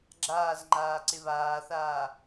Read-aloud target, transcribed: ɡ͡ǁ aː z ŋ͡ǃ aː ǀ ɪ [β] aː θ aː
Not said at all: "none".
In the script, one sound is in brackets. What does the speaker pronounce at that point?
β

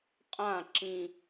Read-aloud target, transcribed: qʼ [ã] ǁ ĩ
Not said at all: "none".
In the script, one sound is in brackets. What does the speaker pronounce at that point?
ã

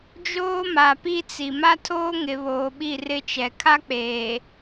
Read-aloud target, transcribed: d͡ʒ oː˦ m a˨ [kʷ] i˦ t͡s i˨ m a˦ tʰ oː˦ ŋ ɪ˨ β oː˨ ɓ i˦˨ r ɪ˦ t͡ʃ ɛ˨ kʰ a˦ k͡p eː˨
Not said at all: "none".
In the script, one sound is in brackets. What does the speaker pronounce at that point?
p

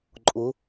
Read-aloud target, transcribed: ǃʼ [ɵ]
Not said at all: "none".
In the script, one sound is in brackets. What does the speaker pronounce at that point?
ʊ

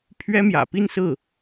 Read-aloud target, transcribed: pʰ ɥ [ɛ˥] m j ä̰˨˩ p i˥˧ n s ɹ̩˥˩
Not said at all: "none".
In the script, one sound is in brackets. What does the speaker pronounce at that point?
ɛ˥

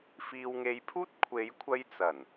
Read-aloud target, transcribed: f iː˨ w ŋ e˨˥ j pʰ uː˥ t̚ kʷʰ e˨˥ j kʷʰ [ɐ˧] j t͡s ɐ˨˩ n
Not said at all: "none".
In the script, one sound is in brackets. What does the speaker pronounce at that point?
ɐ˧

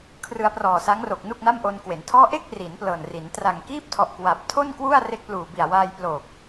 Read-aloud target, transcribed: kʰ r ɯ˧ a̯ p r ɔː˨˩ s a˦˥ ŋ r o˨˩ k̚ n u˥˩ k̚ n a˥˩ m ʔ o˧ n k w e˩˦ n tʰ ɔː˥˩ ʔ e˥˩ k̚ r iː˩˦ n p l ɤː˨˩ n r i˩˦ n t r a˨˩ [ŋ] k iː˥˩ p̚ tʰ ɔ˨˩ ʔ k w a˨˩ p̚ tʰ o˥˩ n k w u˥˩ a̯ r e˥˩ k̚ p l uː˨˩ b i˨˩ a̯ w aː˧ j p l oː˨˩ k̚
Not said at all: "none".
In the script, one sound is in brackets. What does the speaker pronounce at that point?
ŋ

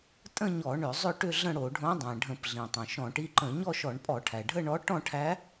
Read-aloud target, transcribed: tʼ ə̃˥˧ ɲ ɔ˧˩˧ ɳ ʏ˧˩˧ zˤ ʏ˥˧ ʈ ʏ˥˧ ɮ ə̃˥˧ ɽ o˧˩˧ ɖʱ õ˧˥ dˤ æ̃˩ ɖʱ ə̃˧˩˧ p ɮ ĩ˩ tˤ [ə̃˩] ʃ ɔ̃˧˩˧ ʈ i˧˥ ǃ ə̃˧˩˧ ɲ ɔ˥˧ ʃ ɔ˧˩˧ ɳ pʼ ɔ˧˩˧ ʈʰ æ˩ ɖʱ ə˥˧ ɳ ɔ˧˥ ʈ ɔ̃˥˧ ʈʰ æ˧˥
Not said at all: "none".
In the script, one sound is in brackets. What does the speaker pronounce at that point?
ə̃˩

